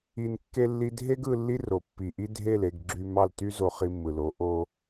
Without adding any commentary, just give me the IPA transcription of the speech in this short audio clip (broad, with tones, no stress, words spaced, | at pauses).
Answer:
i˨nkːe˧lːi˧ dʱe˦ɡɯ˧ lːi˦ro˨ pːi˨ʔi˦ dʱe˦˨le˦˨ɡɡ͡ǁy˧ mɑ˦˨lty˦zo˧ χi˧mːɯ˨lo˨˦ ʔo˧